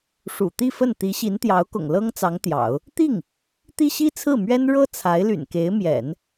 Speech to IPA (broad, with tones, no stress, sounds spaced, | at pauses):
ʂ ṵ˨˩ t̪ i˥˧ f ə˥˩ n t̪ i˧˥ ɕ i˧˥ n t̪ j ɑ˧˥ ʊ̯ k ʊ̰˨˩ ŋ l ɤ˥ ŋ t͡s ɑ˧˥ ŋ t̪ j ɑ̰˨˩˦ ʊ̯ | t̪ i˥˩ ŋ | t̪ i˥ ɕ i˥ t͡sʰ ɹ̩˥˩ m ɥ ɛ˥ n ɻ ɤ˥ t͡sʰ a˧˥ ɪ̯ l y̰˨˩ n k e˧˥ ɪ̯ m j ɛ̰˨˩˦ n